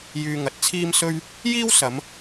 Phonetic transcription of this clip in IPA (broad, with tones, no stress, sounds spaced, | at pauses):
j yː˧ ŋ ɐ˨˥ t̚ t͡sʰ iː˥ m s ɵ˥ ɥ | j iː˥ w s ɐ˨˧ m